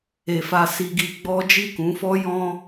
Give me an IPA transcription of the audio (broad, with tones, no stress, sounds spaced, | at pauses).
e˨ f a˧ s i˧ ɡ i˧ ɡ͡b ɔ˦ d͡ʒ i˦˨ k ũ˨˦ f ɔ˦ j ɔ̃˦